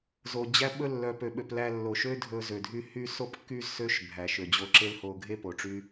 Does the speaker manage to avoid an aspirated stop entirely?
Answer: yes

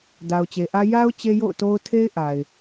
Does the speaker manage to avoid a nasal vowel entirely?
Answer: yes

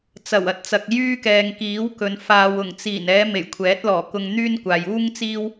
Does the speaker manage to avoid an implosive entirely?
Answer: yes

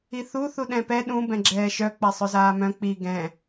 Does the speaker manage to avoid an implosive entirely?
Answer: no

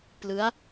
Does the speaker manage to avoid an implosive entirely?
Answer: yes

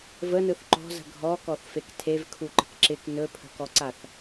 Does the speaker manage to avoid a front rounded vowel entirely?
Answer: yes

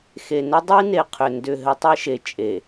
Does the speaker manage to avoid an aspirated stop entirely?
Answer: no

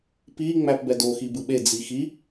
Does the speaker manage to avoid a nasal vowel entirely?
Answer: yes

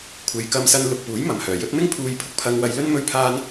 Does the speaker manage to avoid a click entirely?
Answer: yes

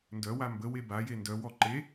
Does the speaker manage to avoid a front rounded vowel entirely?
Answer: no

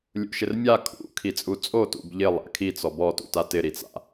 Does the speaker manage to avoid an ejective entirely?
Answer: no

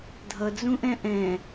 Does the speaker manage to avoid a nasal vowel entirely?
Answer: no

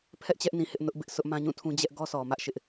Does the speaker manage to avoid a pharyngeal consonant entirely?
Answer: yes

